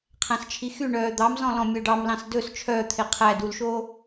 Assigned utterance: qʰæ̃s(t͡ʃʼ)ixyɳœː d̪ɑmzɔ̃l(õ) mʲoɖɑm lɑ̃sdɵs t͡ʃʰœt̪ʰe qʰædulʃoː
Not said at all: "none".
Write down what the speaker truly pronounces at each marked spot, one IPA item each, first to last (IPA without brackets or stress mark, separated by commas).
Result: t͡ʃʰ, ɔ̃